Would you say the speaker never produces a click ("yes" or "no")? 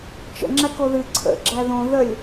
no